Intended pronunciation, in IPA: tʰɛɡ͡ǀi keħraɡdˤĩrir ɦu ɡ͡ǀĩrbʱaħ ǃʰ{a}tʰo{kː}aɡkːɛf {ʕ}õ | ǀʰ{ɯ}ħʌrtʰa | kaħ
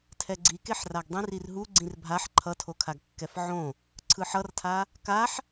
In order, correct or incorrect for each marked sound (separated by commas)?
incorrect, incorrect, correct, correct